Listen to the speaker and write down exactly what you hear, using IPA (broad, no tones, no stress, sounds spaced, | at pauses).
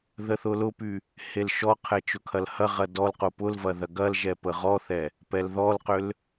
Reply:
ð ə θ ʊ l ʊ p y | h e l ʃ ɔ qʰ ɛ t͡ʃ ʊ kʰ ɐ l h ɐ ʁ ɐ d ɔ l q ʊ p ʊ l v ɐ ð ɐ ɡ ɐ l ʒ ɛ p ə ʁ ɔ θ ɛ | p ɛ l ð ɔ l q ʏ l